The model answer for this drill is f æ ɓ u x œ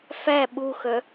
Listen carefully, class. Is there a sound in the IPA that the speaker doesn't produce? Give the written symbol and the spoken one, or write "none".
none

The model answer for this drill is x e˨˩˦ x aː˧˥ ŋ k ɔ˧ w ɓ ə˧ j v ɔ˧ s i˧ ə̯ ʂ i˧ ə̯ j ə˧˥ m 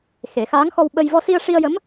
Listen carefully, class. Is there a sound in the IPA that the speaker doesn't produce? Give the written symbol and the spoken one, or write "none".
k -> x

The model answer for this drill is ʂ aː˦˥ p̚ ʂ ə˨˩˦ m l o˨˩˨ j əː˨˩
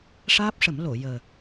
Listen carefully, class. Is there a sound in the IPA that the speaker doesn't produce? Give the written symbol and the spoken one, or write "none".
none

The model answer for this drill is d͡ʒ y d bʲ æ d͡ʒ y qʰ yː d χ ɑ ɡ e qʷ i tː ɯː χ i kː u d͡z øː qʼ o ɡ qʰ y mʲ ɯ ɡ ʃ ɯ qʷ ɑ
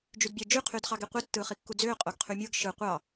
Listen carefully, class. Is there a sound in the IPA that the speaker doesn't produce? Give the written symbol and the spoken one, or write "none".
none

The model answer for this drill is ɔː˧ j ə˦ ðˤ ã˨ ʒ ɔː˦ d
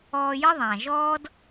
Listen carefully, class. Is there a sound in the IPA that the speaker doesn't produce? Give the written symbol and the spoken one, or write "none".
none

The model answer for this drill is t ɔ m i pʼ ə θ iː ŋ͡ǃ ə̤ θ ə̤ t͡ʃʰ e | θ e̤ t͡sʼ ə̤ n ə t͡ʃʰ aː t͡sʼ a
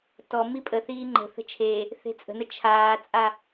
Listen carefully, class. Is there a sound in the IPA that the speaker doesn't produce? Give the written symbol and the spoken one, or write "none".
none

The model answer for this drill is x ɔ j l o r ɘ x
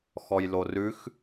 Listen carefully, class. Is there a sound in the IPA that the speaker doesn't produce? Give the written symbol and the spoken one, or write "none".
ɘ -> ʉ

